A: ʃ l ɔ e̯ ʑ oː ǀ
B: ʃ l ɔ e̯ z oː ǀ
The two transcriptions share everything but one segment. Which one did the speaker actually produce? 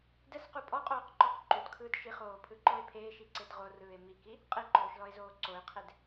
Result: B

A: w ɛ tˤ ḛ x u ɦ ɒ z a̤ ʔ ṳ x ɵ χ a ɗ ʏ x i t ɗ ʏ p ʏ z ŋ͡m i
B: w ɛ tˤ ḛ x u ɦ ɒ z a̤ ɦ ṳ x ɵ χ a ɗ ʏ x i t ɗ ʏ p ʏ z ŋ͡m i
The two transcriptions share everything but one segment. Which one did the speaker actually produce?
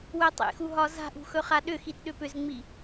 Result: A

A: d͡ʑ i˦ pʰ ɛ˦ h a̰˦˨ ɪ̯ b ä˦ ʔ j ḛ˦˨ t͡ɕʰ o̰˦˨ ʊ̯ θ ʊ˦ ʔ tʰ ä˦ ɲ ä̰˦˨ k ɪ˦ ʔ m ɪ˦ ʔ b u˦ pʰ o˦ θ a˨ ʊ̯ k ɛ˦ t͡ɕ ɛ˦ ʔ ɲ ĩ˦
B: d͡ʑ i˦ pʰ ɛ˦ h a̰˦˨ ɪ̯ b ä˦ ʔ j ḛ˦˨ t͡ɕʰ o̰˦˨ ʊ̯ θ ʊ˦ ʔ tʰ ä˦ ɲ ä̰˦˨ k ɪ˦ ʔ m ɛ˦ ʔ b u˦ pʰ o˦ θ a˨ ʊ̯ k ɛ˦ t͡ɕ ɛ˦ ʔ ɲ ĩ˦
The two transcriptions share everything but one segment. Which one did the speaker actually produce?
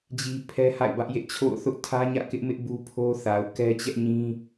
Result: A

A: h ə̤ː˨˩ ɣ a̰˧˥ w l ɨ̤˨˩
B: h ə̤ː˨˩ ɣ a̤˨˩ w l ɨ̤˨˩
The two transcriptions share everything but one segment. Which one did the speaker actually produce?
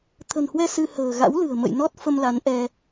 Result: A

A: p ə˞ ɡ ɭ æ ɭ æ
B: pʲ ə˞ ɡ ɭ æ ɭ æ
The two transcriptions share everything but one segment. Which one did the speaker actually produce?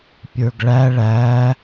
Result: B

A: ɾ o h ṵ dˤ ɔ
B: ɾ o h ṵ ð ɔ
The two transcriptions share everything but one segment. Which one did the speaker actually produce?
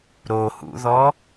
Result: B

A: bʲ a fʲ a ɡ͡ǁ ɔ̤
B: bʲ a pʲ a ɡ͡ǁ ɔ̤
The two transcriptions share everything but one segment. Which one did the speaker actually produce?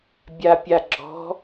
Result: B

